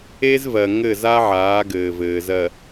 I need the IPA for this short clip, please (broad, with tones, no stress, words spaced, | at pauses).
e˦zvɜ˨ ŋɘ˦˨za˦ʕaː˨˦ɡɘː˨ vɘː˨zɜ˨